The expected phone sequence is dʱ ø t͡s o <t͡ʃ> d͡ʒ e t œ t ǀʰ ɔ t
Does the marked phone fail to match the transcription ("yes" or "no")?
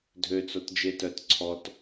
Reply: yes